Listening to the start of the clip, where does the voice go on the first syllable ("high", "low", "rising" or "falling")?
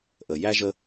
low